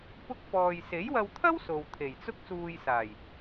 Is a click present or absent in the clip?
absent